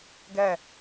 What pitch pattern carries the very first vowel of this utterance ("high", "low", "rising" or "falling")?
falling